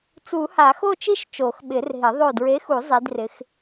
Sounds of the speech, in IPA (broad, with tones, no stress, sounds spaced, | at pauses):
t͡s u˨˩˦ h a˨˩˦ x o˥˧ t͡ʃ i˥˧ ʃ t͡ʃ o˨˩˦ x ɓ ɪ˨˩˦ r ɦ ɪ˨˩˦ ðˤ o˧˩ d ɹ e˨˥ x u˨˩˦ zˤ i˨˥ d r ɪ˨˥ x